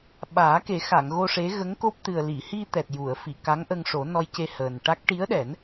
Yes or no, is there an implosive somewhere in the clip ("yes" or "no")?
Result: yes